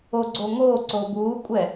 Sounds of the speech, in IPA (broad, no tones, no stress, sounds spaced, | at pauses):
o ɡ͡ǀ oː ŋ oː ǀ oː b uː kʷʼ ɛ